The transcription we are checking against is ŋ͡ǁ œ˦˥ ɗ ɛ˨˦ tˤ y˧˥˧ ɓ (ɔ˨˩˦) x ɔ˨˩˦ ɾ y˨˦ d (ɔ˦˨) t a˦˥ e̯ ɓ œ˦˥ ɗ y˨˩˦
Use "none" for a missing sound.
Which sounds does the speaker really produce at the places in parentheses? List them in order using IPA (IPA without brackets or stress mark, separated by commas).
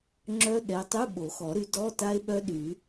o˨˩˦, ɔ˧˥˧